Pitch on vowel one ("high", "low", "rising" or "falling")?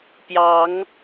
rising